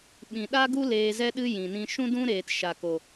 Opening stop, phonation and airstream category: implosive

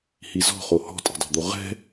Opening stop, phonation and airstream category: ejective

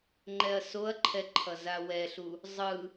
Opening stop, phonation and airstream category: click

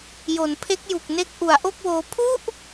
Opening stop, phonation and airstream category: aspirated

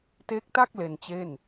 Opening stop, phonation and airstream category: plain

